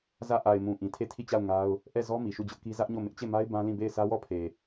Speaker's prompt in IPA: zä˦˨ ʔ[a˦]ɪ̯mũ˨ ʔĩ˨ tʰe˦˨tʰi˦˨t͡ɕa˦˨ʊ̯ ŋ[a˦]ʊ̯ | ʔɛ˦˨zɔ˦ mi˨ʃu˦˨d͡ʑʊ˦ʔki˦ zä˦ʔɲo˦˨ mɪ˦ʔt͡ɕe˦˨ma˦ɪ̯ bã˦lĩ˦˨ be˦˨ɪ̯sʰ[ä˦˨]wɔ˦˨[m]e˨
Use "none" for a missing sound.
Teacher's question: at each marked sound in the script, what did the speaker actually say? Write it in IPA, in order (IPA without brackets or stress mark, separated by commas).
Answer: a˨, a˦, ä˦, pʰ